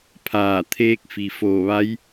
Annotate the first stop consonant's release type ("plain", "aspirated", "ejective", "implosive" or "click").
aspirated